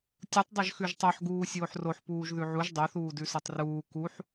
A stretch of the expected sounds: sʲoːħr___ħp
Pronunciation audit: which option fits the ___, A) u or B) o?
B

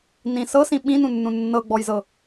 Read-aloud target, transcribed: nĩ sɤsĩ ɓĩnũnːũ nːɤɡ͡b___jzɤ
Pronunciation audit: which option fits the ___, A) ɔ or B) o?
A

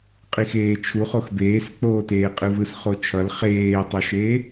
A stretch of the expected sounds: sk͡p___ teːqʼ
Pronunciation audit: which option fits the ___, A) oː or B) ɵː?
A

